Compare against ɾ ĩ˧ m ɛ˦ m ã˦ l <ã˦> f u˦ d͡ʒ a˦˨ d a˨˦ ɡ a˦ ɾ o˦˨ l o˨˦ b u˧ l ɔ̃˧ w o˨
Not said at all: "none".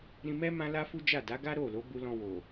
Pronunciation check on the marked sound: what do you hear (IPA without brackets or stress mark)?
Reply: a˦